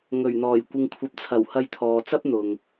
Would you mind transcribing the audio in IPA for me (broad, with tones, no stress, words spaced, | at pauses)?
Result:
ŋɵ˨˩ɥn̪ɔː˨˩j kʷɪ˨ŋkʷʰɐ˨p̚t͡sʰɐ˨˩w hɐ˧jt̪ʰɔː˨t͡sɐ˥p̚ n̪ʊ˨ŋ